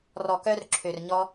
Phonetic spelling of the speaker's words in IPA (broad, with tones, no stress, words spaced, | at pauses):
rɔ˨kœ˧rǁʰø˨r ɲɔ˧